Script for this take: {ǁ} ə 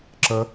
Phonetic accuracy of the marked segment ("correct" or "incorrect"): correct